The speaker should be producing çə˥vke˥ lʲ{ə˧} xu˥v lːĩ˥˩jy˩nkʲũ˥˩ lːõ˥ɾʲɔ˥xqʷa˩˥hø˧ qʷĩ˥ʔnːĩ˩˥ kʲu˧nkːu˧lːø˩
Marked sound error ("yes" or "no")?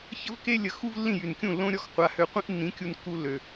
no